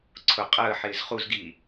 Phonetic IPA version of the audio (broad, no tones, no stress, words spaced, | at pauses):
ǀʰʊ qʼəːħɪːz χuzɡiː